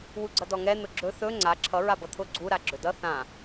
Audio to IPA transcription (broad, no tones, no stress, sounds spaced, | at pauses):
w u ɡ͡ǀ ʌ d ɔ ŋ ɛ n̪ ʊ ɡ͡ǁ ɵ θ ɵ ŋ͡ǀ a ǁʰ ʌ ɹ a b ʌ t̪ʰ ʊ ɡ͡ǀ u ɾ a ɡ͡ǁ ɵ d ʌ θ ã